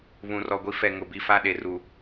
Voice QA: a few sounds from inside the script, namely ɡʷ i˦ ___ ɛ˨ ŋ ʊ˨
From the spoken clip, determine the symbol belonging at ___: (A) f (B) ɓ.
A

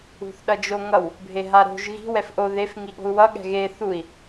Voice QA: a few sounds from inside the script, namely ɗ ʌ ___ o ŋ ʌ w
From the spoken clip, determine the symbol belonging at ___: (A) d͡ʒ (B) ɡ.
A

